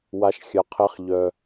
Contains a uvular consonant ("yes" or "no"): yes